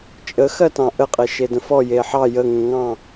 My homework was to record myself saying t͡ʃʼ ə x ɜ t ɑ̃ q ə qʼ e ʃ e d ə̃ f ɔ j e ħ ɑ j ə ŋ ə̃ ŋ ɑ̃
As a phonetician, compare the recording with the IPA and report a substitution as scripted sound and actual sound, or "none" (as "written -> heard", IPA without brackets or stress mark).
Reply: q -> ʔ